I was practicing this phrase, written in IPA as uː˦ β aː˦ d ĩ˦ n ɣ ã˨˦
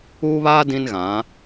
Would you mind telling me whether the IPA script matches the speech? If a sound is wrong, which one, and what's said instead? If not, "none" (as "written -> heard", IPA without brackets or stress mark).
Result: none